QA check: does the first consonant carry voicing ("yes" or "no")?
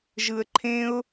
yes